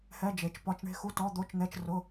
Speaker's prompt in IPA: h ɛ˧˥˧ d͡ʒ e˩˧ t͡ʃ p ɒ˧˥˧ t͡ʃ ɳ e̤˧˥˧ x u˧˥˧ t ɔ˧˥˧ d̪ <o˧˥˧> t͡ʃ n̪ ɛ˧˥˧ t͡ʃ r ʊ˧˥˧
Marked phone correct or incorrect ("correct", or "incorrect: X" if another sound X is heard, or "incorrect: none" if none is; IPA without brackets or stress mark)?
correct